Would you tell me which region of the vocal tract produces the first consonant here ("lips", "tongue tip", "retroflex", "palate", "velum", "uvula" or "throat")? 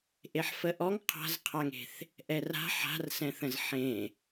throat